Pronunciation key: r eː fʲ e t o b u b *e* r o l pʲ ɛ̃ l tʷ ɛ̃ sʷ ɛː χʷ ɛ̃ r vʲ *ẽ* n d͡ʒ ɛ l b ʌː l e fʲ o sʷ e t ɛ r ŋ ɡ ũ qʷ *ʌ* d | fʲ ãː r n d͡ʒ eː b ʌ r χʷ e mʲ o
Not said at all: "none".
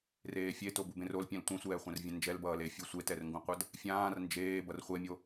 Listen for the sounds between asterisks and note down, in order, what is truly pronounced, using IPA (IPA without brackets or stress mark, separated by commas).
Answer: ẽ, ɛ̃, ʌ